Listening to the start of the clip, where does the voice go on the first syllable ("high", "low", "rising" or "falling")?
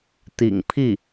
low